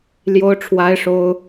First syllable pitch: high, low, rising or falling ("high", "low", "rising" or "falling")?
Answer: high